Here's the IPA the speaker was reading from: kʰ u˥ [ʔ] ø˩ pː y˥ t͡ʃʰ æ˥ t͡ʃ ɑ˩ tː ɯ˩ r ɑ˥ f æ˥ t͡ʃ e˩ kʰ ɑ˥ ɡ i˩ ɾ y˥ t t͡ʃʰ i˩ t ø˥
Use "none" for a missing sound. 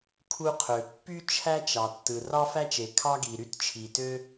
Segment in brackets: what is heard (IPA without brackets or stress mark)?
qʰ